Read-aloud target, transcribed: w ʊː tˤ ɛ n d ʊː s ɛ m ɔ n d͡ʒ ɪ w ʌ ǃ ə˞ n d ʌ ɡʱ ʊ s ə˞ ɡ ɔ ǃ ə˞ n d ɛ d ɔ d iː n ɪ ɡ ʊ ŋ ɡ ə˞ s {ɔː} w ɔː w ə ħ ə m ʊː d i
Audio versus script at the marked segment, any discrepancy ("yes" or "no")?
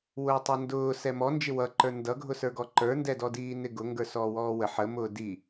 no